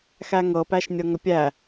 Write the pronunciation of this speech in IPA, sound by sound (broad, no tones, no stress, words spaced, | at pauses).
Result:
xæŋɤ pæʃnʲɤŋəpʲæ